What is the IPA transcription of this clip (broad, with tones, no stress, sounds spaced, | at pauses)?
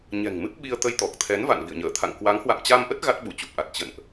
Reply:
ɲ ɛ̤˨˩ ŋ m ɨ˦˥ p̚ ɓ i˧ ə̯ t̪ ə˧ j t̪ ɔ˨˩ k̚ t̪ʰ ɛ˨˦ n v a̰˧˨ n v ḭ˧˨ ə̯ ɲ əː˧˩ t̪ʰ a̰˧˨ ŋ k w a˨˦ ŋ h w a̰˧˨ m t͡ɕ a˧ m ʔ ə˦˥ t̚ ɣ a˦˥ t̚ ɓ u˧˩ t͡ɕ u˨˩ p̚ ʔ a˨˩ t̚ t͡ɕ ə̰˧˨ n ʔ